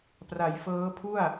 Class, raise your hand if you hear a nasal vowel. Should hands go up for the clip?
no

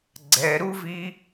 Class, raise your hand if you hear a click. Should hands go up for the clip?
yes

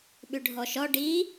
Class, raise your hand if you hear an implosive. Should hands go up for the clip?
yes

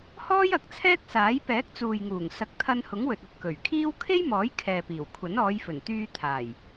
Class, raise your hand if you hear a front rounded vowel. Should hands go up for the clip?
yes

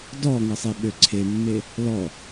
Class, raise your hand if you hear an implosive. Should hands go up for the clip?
yes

